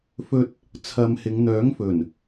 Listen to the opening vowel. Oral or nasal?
oral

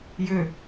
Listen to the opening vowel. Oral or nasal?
oral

